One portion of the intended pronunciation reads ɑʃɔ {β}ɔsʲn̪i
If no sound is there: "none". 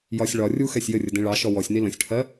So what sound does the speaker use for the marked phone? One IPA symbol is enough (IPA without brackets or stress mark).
w